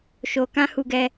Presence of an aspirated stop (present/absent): absent